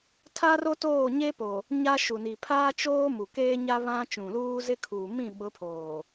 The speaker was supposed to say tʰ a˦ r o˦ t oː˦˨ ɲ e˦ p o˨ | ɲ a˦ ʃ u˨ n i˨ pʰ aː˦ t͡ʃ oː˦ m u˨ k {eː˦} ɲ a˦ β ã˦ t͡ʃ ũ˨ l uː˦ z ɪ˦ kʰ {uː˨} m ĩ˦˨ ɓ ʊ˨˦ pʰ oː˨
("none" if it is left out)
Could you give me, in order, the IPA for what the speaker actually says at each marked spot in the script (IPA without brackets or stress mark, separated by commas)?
eː˦, uː˨